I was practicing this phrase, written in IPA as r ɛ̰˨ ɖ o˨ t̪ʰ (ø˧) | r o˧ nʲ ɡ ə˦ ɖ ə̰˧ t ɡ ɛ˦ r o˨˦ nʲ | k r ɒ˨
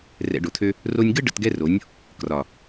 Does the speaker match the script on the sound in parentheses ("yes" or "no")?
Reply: yes